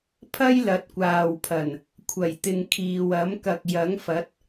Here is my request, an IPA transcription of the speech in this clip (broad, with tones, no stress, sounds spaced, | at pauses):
pʰ ɐ˥ j l ɐ˨˥ t̚ kʷ aː˨ w pʰ ɐ˨˩ n | kʷʰ ɐ˨˩ j t̪ ɪ˨ ŋ kʰ iː˨ w ɐ˨˥ m k ɐ˧ k̚ j ɐ˨˥ ŋ f ɐ˨˥ t̚